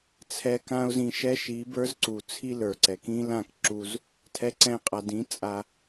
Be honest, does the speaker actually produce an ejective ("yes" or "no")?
yes